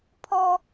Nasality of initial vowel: oral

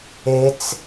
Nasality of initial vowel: oral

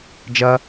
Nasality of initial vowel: oral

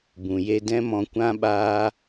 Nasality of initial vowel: nasal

